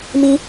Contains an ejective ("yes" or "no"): no